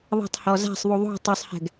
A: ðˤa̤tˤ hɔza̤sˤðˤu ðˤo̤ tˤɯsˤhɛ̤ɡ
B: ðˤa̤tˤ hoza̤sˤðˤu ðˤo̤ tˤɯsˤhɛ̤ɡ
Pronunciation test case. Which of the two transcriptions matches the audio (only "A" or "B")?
A